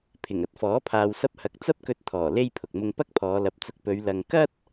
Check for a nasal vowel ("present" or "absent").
absent